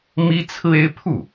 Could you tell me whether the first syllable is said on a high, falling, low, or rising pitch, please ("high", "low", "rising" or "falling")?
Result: high